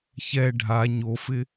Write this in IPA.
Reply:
ç ɛ ɖʱ a ɲ o f ɪ

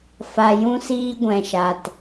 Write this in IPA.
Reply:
f a˨ j ũ˧ s iː˧ ɡʷ ɛ̃˨ ʃ a˨ t

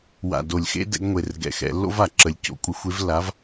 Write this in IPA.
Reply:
w a̰˨˩ d o˨˩ lʲ x ḛ˦ d ɛ̰˨˦ ɡ ŋʷ e˨˩ r ɡ ɛ̰˨˩ x ɛ̰˧˩˧ lː o̰˦ v a˧˩˧ ǁ ə˨˦ lʲ c o̰˧˩˧ kʷʼ ɪ˨˦ xʷ e˨˦ v lː a˨˦ v

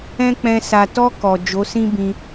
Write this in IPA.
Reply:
ɛ̃˦ k͡p ɛ̃˧ s a˨ t ɔ˧ k ɔ˨ d͡ʒ o˨˦ s ĩ˦ b ĩ˧

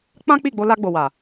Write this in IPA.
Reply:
k͡p ã˦ k͡p i˦˨ ɡ͡b o˧ l a˧ ɡ͡b o˨ w a˨

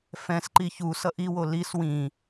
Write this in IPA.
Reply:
f ɛ̃ s ǃ i ç u s ʌ ʔ i w o l i s w ĩ

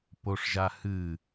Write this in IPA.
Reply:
p o ʂ ʒ a h ɨ

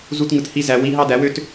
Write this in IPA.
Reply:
z u˦ t ŋ ɯ˧ t h i˦ z æ˧ w i˦ ɦ ɑ˦ d æ˨˦ w ø˦ t

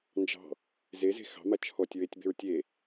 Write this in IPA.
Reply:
n d͡ʒ ɑ̤ | z e z e̤ x ɑ̤ m a t͡ʃʰ ɔ tʲ ɹ e tʲ b e̤ ɹ tʲ e

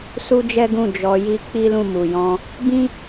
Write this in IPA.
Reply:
s u˦ d͡ʒ ɛ˦ ɡ ũ˦˨ d͡ʒ ɔ˧ j i˦ k͡p i˦ l ũ˦˨ m u˨ j ɔ̃˧ | b ĩ˦

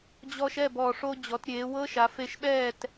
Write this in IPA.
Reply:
d͡ʑ ɔ˧ ʃ ɛ˥˨ b ɔ˨˩ ʂ o˧ d͡ʑ ɔ˩˧ t ɾʲ eː˩˧ w ɤ˦˥ ʃ a˩˧ f e˧ ʃ ɓ ɛː˥˨ t

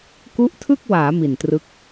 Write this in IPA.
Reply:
k u˦˥ ʔ tʰ ɯ˥˩ k̚ w aː˩˦ m i˨˩ n t r ɯ˦˥ k̚

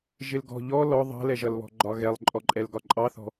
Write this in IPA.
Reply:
ʒ ɪ l ɡ ɔ̤ ʎ ɔ l ɔ ðˤ ɑ̤ l ɛ ʒ ʌ l β ɔ̤ ɡ͡ǃ ɒ ɣ ɛ lˠ ǃʼ ɔ ǃʼ ɛ l ɡ ɒ ǃʼ ɑ θ ɔ̤

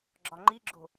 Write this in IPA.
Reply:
ɡ͡ǁ ɒ ŋ͡ǃ i ɡ͡ǁ o̤

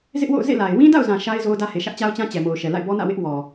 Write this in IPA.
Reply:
z ɪ˦ ʔ w o̰˦˨ ʊ̯ z ḛ˦˨ l a˨ ɪ̯ w ĩ˦ d a̰˦˨ ʊ̯ z ã˨ ʃ a˦ ɪ̯ z o˦ ʊ̯ d ä˦ h e˨ ʃ ä˦ ʔ t͡ɕ a˦ ʊ̯ t͡ɕ ã˦ t͡ɕ ɛ˨ m o˨ ʊ̯ ʃ ɛ˨ l a̰˦˨ ɪ̯ b ɔ˦ n ä̰˦˨ w ɪ˦ ʔ w ɔ˨

